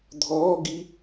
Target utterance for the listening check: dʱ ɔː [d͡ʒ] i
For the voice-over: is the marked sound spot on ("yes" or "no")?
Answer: no